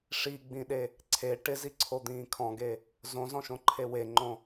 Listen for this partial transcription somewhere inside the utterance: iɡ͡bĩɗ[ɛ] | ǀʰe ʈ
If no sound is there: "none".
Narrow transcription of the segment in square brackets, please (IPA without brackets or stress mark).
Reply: e